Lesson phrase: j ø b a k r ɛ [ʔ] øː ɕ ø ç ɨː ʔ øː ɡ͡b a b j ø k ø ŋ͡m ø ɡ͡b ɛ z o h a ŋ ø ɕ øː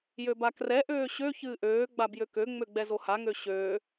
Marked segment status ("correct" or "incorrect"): correct